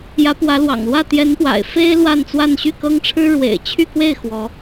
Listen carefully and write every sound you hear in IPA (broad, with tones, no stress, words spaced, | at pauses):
jä˧˥pwä˧˥lwɑ̰˨˩ŋlwä˥˩ t̪jɛ˧˥npwa̰˨˩ɪ̯ fe˥ɪ̯ lwa˥˧nt͡swa˥˧n ɕy˥˩kɤ˥ŋʈ͡ʂʰɻ̩˥ ɻwḛ˨˩ɪ̯t͡ɕʰy˥˧kwe˥˩ɪ̯ xwɔ˧˥